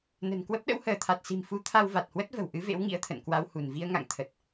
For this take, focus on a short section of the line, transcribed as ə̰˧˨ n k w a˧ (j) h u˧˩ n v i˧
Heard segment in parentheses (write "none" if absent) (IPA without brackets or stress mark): w